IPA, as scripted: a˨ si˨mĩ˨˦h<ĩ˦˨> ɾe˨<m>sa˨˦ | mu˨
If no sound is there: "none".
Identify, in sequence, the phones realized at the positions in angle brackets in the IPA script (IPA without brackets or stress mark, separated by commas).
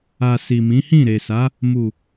ĩ˦˨, none